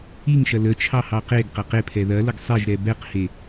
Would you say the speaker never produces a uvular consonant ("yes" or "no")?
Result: no